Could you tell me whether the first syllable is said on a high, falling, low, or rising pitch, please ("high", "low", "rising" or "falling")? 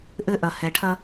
high